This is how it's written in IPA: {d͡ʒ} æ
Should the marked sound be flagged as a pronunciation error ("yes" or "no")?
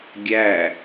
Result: yes